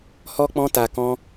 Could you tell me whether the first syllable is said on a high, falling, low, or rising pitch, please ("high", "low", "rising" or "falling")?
high